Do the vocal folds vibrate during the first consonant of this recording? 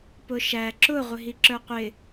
no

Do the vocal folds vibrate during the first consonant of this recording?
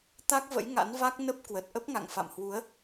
no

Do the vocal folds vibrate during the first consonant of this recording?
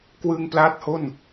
no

